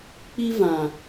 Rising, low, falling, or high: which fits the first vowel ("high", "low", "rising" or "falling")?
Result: high